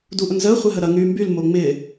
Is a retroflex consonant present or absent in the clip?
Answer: absent